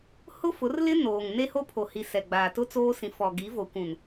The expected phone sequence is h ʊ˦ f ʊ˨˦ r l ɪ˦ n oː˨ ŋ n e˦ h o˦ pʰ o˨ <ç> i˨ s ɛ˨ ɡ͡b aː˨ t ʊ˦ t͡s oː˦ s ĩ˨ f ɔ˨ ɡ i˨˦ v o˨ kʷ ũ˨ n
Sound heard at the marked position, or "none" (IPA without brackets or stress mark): h